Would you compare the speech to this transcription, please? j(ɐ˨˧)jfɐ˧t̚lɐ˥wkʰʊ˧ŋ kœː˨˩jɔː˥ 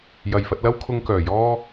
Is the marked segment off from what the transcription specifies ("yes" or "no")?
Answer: yes